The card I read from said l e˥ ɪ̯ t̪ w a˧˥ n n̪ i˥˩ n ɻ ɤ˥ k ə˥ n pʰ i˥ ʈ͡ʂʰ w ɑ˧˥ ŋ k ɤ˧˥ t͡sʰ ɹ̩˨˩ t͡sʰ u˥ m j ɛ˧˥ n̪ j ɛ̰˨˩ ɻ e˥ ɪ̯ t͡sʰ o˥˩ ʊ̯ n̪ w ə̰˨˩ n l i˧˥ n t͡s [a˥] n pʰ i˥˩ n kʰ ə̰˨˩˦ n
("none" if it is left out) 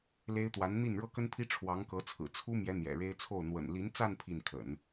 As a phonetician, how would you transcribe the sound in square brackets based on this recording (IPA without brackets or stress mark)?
a˥˧